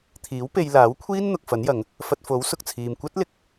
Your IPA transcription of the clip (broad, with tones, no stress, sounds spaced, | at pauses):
t̪ʰ iː˨˥ w p e˧ j l aː˨˥ w kʷʰ iː˥ n n̪ ʊ˨ k̚ f ɐ˨˥ n j ɐ˨˧ ŋ | f ɐ˧ t̚ f o˨˥ w s ʊ˨ k̚ t͡sʰ iː˨ m kʷ ɐ˥ t̚ l ɪ˧ k̚